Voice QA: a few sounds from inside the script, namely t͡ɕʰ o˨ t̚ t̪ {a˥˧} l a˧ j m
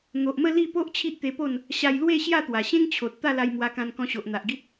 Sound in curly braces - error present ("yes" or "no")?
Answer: no